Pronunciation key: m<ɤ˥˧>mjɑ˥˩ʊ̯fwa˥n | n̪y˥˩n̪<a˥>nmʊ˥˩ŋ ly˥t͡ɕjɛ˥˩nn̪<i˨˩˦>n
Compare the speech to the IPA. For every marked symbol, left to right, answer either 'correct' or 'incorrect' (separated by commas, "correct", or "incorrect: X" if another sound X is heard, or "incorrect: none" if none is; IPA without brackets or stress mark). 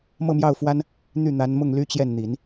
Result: correct, incorrect: a˧˥, correct